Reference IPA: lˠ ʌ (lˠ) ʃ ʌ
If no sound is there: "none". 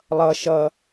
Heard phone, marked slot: none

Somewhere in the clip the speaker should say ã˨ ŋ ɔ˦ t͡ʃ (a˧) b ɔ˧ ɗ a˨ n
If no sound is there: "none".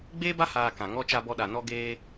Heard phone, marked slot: a˧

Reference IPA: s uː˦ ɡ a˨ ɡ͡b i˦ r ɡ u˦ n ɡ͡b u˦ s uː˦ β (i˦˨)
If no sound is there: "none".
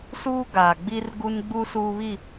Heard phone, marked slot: i˦˨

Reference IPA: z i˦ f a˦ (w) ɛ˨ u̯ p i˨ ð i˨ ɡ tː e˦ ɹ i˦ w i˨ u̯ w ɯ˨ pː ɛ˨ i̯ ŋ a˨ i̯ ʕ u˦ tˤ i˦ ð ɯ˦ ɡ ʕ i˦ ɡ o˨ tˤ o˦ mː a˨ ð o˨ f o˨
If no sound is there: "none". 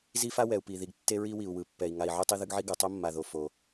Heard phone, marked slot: w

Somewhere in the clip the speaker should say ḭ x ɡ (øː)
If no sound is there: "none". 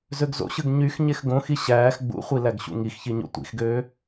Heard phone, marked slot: øː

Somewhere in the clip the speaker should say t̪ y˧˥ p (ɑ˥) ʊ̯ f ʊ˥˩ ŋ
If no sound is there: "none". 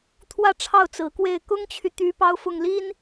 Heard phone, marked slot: ɑ˥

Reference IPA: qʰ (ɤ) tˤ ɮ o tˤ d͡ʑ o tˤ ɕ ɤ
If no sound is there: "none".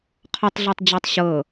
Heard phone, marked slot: ɔ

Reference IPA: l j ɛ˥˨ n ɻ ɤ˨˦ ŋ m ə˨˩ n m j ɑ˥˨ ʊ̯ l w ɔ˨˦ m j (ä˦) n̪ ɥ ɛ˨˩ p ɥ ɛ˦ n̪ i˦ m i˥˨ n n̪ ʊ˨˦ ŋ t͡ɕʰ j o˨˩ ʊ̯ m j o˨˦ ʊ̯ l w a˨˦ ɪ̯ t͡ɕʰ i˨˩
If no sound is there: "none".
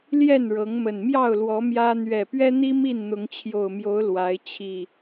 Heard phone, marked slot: ä˦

